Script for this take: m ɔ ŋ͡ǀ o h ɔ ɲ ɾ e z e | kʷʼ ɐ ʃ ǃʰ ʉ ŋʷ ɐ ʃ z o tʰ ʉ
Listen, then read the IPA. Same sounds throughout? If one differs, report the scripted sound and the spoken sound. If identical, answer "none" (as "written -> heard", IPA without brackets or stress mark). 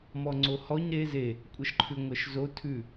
none